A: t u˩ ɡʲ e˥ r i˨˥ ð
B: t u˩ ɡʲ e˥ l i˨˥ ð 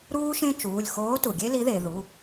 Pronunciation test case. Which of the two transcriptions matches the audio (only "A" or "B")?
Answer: B